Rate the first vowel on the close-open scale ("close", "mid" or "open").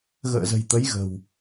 mid